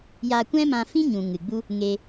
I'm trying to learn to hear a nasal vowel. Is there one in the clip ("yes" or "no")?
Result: yes